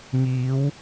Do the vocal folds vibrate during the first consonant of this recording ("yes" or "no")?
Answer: yes